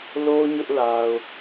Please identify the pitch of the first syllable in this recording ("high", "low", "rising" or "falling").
high